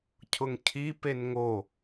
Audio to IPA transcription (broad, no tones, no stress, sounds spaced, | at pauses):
cʰ ʊ ŋ cʰ i p e n ŋ o